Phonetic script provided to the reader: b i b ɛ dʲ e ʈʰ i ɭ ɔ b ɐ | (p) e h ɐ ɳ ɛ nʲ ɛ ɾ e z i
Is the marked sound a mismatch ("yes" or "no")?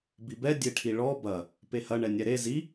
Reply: no